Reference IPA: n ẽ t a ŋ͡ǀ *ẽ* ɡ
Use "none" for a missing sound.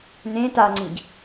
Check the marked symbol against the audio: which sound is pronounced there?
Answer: ĩ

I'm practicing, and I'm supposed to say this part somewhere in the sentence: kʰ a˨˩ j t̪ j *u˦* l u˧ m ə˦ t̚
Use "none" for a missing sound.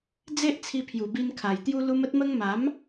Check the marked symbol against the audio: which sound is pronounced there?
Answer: u˧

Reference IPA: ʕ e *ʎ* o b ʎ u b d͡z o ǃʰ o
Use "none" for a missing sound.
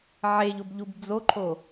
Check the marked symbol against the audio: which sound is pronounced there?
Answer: ʎ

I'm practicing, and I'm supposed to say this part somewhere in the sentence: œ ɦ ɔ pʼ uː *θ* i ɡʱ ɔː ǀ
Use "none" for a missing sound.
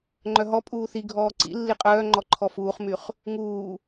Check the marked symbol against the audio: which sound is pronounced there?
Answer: θ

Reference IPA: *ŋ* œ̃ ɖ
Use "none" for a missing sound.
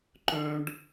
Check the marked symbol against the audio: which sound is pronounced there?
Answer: ǃ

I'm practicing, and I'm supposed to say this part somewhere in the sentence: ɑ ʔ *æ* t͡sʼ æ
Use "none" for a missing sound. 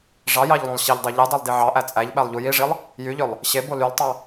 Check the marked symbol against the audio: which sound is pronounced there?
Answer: æ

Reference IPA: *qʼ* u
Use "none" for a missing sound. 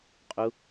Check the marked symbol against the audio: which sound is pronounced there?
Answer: qʼ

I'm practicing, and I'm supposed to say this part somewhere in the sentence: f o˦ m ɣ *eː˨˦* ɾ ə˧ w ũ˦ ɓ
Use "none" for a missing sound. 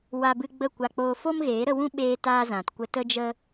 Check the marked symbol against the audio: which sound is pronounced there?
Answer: eː˨˦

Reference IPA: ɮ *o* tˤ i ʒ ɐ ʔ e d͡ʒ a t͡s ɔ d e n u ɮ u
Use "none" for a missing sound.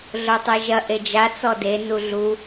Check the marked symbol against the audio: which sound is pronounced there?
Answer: o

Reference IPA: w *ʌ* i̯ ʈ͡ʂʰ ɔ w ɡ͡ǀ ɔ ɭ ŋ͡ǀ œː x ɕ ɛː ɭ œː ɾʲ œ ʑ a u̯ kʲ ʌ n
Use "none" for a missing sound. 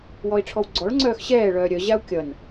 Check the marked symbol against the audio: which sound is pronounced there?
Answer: ɔ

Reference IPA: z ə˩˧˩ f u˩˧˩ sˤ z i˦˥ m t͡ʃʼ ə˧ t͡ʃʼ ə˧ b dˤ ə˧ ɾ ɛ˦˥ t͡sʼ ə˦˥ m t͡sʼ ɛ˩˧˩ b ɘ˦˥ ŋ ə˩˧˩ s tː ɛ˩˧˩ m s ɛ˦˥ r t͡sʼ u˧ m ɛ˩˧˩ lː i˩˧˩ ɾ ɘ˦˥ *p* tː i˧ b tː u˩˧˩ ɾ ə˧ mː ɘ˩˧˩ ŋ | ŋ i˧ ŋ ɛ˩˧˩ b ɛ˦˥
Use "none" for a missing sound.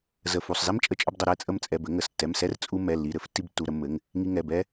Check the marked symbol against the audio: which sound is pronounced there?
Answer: f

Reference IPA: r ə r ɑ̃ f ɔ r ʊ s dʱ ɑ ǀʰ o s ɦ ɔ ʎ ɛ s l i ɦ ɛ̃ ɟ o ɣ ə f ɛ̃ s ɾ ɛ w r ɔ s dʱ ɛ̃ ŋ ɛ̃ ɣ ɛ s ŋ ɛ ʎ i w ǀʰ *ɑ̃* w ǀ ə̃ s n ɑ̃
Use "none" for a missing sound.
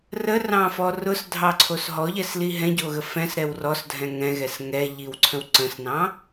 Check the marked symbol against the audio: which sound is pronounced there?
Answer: ə̃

